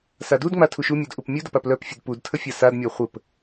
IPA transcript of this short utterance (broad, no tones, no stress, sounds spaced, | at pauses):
s a d u d ŋ͡m a tʰ u ʃ u mʲ u d ʔ u p mʲ u d ə p a p l œ p fʲ ə d p u d tʰ ə fʲ a s a d mʲ a χʷ ə p